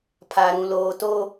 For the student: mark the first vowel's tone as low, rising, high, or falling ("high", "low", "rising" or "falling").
low